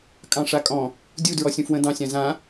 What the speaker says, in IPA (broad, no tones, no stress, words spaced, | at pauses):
kʼɑ̃ʂakʼɔ̃ | dʲu dɹɔsʲũfwə̃ dɑ̃sʲã zã